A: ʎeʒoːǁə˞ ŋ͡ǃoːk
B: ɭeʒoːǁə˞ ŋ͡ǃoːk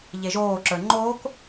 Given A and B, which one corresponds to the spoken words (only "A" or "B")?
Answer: A